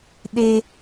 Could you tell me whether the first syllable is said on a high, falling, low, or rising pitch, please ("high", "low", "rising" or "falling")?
high